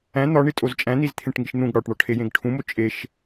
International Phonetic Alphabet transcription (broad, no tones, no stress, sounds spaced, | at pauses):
æ̃ n̪ ɒ ɳ i tʼ o z t͡ʃʼ æ̃ n̪ i z t̪ʰ ẽ ʈ ŋ i ʃ n̪ ũ ɡ ɽ ɒ ʈ ɳ ɒ ʈʰ e j ẽ ɡ ʈʰ ũ m o t͡ʃʼ e ʃ